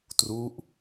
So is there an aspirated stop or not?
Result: no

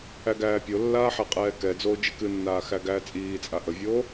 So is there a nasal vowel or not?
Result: no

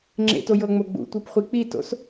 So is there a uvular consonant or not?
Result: yes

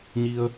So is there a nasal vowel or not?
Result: no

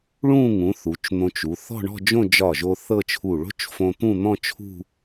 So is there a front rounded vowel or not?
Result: no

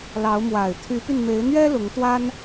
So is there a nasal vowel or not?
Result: no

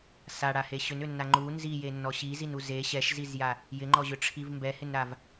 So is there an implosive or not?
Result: no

